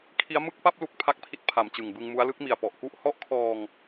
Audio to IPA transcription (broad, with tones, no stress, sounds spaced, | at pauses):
kʰ i˦˥ a̯ m ɯ˥˩ k̚ p a˥˩ p̚ l u˦˥ k̚ pʰ a˦˥ k̚ pʰ i˦˥ t̚ pʰ a˩˦ m t͡ɕ ɯ˨˩ ŋ b ɯ˧ ŋ m u˦˥ a̯ l ɯ˦˥ k̚ m i˨˩ a̯ p ɔ˨˩ ʔ k u˦˥ ʔ h ɔ˦˥ ʔ kʰ ɔː˧ ŋ